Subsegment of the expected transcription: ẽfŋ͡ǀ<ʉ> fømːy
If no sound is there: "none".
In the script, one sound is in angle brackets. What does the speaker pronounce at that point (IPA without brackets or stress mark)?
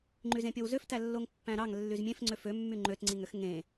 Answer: ø